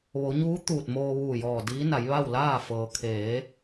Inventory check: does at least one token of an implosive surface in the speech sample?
no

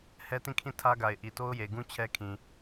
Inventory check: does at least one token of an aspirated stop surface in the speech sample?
yes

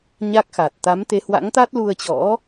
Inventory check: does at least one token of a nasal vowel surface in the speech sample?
no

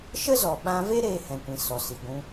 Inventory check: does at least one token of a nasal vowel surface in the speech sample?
yes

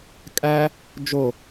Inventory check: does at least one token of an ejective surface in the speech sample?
yes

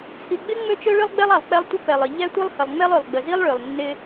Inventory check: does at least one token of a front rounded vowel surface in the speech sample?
yes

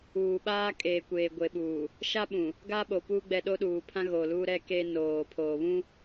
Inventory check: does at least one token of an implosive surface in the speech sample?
yes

